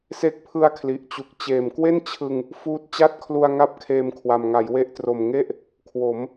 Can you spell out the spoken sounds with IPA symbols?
s e˦˥ k̚ pʰ ɯ˦˥ a̯ kʰ l i˨˩ ʔ t͡ɕ u˨˩ k̚ t͡ɕ eː˨˩ m k w e˥˩ n t͡ɕʰ ɯ˧ ŋ | f uː˦˥ t̚ t͡ɕ a˥˩ t̚ kʰ l u˧ a̯ ŋ a˦˥ p̚ kʰ eː˧ m kʰ w a˨˩ m ŋ a˩˦ j w e˦˥ ʔ t r o˨˩ m ŋ e˥˩ ʔ | kʰ w o˩˦ m

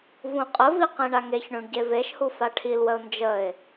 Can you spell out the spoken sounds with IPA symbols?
v ũ qʼ ə v i q ẽ ɳ a ŋ e ç ɳ ũ ɳ ɟ e v e ʃ h u f a ʈʰ i l w ə ʊ̯ n d͡ʒ ə ɪ̯

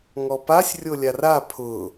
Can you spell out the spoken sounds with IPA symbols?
ŋ ɔ p a sʲ rʲ o lʲ a r a pʰ ʊ

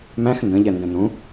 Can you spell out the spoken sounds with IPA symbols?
m æ̃ x n d ə̃ ʎ ɛ n d ɛ̃ n ũ

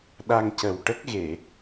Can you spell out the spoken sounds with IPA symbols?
ɗ a˧ ŋ c ə˨˩ w ʈ ə˦˥ k̚ ɣ e˨˩˨

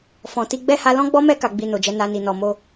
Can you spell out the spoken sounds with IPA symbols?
f ɔ̃˨ t i˧ ɡ͡b ɛ˦ h a˧ l ɔ̃˦ ɡ͡b ɔ˦ m ɛ˦ k a˧ ɡ͡b i˧ n o˨ d͡ʒ ɛ˨˦ n a˧ n i˨ n ɔ˨ m o˧

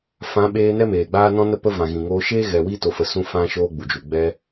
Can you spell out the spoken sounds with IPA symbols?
f ã˨˦ ɓ eː˧ n ɛ˦ m eː˨ ɡ͡b aː˦ n ɔ̃˦ n ə˦ p ə˦ v ã˨ ɣ ĩ˨ ŋ oː˧ ʃ eː˦ ɣ ɛ˨ w iː˦ t o˨ f ə˨ s ũ˦ f ã˦ ʃ oː˦ ɡ͡b u˨ d͡ʒ u˨ ɡ͡b ɛ˦

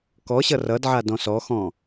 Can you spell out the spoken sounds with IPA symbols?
k ɔ ɕ ʌ r ʌ d ʕ a d ɔ̃ s ɔ x ɔ̃

